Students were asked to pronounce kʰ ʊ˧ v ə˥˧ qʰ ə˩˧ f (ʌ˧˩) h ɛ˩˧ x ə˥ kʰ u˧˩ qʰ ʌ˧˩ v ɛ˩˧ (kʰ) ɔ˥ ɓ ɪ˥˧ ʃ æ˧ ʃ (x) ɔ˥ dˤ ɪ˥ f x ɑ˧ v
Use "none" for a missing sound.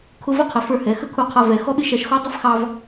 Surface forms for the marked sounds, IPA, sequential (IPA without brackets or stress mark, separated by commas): ə˞˧˩, x, x